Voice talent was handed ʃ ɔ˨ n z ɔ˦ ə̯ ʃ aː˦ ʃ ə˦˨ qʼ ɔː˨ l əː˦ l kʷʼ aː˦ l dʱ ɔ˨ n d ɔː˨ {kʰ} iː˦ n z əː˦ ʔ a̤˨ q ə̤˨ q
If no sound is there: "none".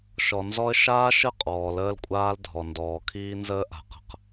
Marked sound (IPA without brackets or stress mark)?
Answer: kʰ